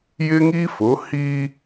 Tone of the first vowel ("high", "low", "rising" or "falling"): high